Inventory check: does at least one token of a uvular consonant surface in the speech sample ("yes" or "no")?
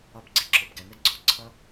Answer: no